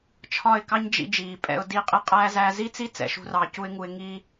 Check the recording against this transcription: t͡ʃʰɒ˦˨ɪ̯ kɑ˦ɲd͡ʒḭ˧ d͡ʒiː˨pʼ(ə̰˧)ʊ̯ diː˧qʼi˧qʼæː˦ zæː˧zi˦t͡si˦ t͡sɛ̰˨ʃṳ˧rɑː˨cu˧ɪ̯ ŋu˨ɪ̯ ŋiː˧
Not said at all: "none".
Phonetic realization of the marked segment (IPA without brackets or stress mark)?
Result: ɛ̰˧